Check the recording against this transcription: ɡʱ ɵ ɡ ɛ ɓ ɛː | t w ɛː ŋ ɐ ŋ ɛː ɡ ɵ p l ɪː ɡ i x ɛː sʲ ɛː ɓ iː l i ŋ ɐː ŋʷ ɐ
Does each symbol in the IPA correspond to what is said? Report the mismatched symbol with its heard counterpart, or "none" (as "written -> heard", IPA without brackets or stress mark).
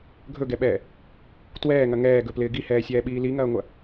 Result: x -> h